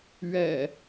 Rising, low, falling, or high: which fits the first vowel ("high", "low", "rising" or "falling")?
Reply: low